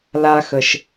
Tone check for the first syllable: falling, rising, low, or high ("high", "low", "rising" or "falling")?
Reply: low